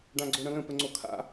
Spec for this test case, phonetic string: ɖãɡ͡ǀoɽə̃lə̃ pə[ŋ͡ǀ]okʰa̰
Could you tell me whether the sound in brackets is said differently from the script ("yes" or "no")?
no